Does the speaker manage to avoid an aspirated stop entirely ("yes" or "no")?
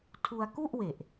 no